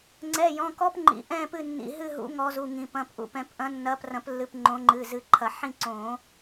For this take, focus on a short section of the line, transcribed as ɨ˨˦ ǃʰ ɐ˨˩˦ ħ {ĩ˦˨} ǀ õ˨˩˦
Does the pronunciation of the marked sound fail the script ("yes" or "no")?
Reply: no